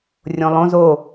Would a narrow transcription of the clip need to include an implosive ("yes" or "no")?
no